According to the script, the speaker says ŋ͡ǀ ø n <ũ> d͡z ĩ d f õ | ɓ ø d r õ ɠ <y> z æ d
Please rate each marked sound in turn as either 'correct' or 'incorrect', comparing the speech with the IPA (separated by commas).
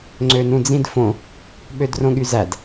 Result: correct, correct